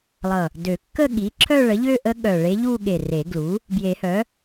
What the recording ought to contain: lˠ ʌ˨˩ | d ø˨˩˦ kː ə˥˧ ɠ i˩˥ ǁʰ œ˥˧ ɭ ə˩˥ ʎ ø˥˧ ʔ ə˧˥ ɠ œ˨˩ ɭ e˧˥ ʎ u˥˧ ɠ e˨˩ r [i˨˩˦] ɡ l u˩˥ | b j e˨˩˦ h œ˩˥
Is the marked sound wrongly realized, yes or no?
yes